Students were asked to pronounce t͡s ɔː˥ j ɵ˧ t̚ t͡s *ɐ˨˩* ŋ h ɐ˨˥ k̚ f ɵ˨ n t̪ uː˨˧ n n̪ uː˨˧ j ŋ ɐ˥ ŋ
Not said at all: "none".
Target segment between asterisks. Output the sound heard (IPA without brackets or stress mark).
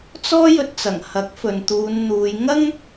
ɐ˨˩